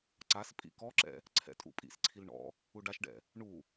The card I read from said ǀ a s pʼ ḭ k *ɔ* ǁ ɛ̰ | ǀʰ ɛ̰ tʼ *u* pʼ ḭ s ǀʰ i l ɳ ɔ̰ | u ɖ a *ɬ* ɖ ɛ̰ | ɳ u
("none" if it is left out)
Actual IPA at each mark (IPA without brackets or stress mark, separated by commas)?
ɔ, ṵ, ʃ